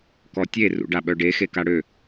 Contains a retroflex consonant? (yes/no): yes